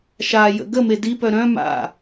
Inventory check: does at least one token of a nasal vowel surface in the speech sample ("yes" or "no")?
yes